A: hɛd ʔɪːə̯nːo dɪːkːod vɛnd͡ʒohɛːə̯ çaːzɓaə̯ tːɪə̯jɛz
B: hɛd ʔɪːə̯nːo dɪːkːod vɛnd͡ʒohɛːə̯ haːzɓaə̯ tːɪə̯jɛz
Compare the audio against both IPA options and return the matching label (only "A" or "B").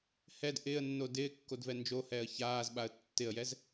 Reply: A